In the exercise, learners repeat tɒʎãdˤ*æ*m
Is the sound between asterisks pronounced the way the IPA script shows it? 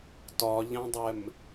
no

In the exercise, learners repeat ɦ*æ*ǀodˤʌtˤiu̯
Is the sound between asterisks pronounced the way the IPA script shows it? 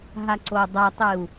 no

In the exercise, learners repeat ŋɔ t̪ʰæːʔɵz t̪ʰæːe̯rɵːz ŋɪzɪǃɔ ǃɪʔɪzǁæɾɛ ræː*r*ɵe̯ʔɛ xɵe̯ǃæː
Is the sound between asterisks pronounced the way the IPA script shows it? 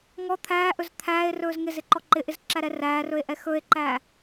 yes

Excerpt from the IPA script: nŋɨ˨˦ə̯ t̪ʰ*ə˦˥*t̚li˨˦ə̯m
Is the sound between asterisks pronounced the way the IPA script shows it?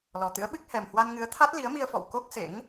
no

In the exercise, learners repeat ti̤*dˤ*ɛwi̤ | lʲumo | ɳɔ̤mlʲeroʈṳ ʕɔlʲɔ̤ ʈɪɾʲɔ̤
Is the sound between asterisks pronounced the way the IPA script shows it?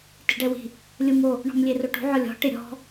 no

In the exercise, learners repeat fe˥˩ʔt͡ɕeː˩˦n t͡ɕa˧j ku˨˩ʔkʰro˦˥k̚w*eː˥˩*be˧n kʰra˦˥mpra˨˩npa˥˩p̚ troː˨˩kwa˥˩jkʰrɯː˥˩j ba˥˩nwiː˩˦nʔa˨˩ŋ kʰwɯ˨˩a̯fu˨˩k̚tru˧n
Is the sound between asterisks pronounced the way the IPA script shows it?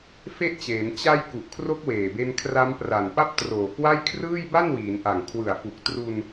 no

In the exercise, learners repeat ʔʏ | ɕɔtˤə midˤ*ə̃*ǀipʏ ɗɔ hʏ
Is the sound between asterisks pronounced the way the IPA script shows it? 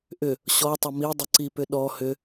no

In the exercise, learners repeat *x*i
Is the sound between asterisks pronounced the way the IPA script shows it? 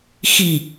yes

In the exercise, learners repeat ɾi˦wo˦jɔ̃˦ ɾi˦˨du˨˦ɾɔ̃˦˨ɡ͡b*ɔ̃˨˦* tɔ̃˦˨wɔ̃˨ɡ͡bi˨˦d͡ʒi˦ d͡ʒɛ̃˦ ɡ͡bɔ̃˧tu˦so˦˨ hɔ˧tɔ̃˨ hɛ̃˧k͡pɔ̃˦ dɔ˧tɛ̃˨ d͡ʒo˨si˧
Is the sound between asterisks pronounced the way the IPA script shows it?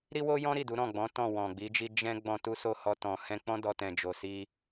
yes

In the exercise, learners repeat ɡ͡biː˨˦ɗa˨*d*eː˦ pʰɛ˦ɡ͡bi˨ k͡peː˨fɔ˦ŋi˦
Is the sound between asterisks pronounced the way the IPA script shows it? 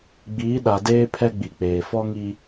yes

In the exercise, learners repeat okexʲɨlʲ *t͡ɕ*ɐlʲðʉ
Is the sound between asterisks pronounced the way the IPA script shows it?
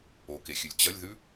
yes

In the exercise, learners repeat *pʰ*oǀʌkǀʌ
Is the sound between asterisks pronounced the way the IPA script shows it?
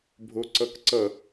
no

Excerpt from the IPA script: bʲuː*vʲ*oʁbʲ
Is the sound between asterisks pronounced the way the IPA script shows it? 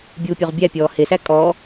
no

